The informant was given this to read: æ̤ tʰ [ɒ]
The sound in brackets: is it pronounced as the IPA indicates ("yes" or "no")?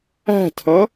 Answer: no